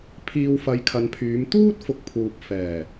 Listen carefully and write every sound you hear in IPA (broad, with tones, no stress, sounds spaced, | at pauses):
pʰ iː˨ w f ɐ˨˧ j kʰ ɐ˨ n pʰ yː˨˧ m t̪ uː˥ t̚ f ʊ˨ k̚ pʰ uː˨ p̚ f ɛː˨˩